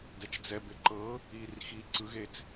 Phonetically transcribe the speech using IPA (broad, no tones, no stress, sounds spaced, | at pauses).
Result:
d ɛ t͡ʃ d͡z ɛ b e ǃ ɤ | iː r x iː ǀ ɯ ɣ e t͡s